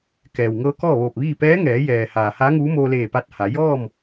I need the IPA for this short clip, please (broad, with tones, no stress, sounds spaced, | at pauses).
k ɛː˩ w ŋ ɤː˧˥ k ɔː˥˨ ʋ oː˧˩ p̚ ʋ iː˥˨ p ɛː˧˥ ŋ ɛː˩˧ j ɛː˩ h aː˩ h aː˧˥ ŋ uː˧˥ m oː˧ l eː˧˩ p a˧ t̚ h a˩˧ j ɔː˥˨ m